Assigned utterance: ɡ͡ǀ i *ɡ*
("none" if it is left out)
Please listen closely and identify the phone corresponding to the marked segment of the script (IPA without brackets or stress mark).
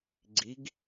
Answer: ɡ